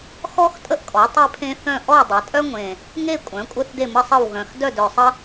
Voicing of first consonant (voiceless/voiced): voiceless